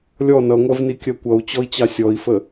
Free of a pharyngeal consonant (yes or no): yes